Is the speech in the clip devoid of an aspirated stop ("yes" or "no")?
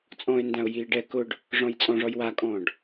yes